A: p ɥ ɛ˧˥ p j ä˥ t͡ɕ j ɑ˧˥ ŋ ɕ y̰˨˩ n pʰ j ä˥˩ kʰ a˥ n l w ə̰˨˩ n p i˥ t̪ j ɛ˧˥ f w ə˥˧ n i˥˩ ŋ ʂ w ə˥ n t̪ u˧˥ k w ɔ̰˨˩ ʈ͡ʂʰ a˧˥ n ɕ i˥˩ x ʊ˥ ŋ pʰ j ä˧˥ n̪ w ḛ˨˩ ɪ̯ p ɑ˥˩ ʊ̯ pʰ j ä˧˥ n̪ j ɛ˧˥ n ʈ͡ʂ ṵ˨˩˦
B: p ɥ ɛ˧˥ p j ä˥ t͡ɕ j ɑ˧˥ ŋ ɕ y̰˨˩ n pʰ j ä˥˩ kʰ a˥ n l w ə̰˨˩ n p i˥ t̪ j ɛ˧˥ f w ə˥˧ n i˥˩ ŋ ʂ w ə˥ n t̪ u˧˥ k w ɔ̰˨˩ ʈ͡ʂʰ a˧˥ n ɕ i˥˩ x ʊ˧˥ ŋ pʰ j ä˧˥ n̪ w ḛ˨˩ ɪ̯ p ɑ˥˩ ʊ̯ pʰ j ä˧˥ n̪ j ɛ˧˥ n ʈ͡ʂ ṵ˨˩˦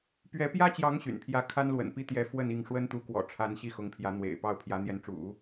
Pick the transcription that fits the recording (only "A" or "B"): B